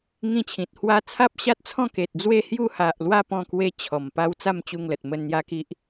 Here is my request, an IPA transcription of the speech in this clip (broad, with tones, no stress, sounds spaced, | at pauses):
ŋ ĩ˧ t͡ɕʰ ĩ˨ t̚ h w a˧ t͡sʰ a˦ p̚ ɕ a˦ t̚ t͡sʰ ɔ̃˥˧ k e˨ t̚ d͡z w e˧ h j u˧ h a˨ ʔ l w a˧ p ɔ̃˥˧ k w e˦ t͡ɕʰ ɔ˨˩ m p a˦ w t͡s a˥˧ m t͡ɕ u˧ ŋ l ə˨ t̚ m ə˧ n n̪ j a˦ k i˦ ʔ